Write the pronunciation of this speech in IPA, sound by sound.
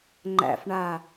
ŋ͡ǃ æ̰ f ɳ a

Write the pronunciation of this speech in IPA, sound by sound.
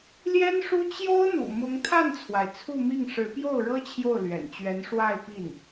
l j ɛ˥ n ʂ u˥ t͡ɕ j o˥ ʊ̯ n̪ ṵ˨˩ m ʊ˧˥ ŋ t̪ʰ a˥˩ n t͡sʰ w a˩ ɪ̯ t͡sʰ u˥˧ m i˥˩ ŋ ʂ ɻ̩˧˥ p j o˥˩ ʊ̯ ɻ ɤ˥ t͡ɕʰ j o˥˩ ʊ̯ l ɥ ɛ̰˨˩ n t͡ɕ ɥ ɛ˧˥ n ʂ w a˥˧ ɪ̯ p i˥˩ n

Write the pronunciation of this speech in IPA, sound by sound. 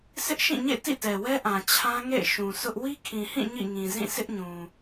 sʰ ɪ˦ ʔ ʃ ĩ˦˨ ɲ ḛ˦˨ t ḭ˦˨ t ɛ˨ w ɛ˦ ʔ ã˨ t͡ɕʰ ã˦ ŋ ḛ˦˨ ɪ̯ ʃ ũ˨ sʰ ʊ˦ ʔ w i˦ kʰ ĩ˨ h ĩ˦˨ ɲ ḭ˦˨ ŋ ĩ˨ z ĩ˦˨ s ɪ˦ ʔ ɲ ũ˨

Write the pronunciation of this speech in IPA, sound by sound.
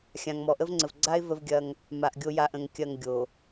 xʲ ã˨ ŋ m ɔ˨ ʔ ə˦ v ŋ͡ǀ ə˨ v ɡ͡ǀ a˦ ɪ̯ v ə˦ v ɡʲ ɐ˦ ŋ | m a˨ ʔ ɡʲ o˦ j a˨ ʔ ə̃˨ ŋ kʲ ɐ˦˨ ŋ ɡʲ o˨

